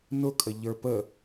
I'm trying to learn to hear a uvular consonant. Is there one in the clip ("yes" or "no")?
no